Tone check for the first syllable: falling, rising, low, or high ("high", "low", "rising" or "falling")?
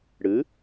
rising